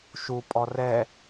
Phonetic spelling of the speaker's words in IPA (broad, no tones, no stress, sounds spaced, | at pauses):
ʃ u pʼ ɔ r ɛ